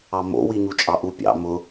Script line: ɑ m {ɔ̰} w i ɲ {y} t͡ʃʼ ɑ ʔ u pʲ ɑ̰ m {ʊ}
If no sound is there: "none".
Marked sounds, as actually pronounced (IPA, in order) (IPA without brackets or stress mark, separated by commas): o̰, u, ʊ